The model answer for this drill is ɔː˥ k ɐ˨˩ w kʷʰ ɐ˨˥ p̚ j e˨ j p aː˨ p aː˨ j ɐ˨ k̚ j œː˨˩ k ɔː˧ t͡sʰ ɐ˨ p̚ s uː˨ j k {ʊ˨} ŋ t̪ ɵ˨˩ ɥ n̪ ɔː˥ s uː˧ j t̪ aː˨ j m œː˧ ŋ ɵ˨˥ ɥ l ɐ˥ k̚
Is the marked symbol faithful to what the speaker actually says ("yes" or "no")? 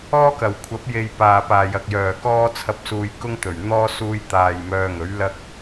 no